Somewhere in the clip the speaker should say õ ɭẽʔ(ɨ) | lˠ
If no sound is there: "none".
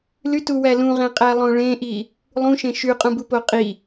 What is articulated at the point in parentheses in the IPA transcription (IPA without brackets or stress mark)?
i